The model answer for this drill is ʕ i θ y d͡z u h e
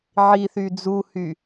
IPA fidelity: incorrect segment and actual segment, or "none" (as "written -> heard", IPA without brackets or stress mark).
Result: e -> y